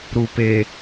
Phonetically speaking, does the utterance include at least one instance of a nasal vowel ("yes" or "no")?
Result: no